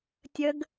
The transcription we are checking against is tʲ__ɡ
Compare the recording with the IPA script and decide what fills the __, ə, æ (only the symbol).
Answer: ə